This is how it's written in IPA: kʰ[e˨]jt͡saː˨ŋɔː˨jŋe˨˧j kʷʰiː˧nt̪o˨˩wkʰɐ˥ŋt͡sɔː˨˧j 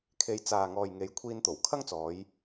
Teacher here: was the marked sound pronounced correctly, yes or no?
no